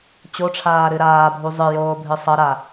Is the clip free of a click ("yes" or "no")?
yes